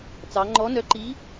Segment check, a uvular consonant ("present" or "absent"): absent